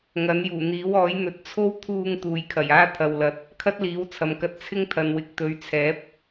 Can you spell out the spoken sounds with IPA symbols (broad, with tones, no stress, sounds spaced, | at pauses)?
ŋ ɐ˨˥ n j uː˨˩ n̪ iː˨˥ w ɔː˨˥ j n̪ ɵ˨ t̚ t͡sʰ o˥ w t̪ʰ uː˧ ŋ t̪ uː˨ j kʰ ɐ˨˩ j aː˥ t̪ʰ ɐ˨ w l ɐ˨ t̚ | kʰ ɐ˥ t̚ l iː˨˥ w t͡sʰ ɐ˨˧ m k ɐ˧ t̚ t͡sʰ ɪ˥ ŋ t̪ʰ ɐ˨ n w ɪ˨˥ k̚ t̪ ɵ˨˧ ɥ t͡sʰ ɛː˨˥ p̚